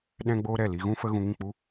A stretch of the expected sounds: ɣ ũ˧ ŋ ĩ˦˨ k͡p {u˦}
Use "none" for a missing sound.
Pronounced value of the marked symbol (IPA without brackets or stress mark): u˦